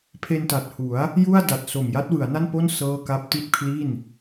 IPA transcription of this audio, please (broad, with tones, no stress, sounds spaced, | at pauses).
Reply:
pʰ e˧ n t a˨˩ t̚ h u˩˦ a̯ | j u˥˩ a̯ d a˨˩ t̚ s o˨˩ m j a˦˥ t̚ w ɯ˩˦ a̯ n a˥˩ n p o˥˩ n s ɤː˥˩ k a˥˩ p̚ t i˥˩ t̚ pʰ l i˥˩ n